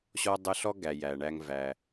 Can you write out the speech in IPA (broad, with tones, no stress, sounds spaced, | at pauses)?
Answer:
ɕ ɔ˦ dˤ ə˦ ɬ ɔ˥ ɡ æ˩ j æ˩ ɳ æ˨ ŋ v æ˩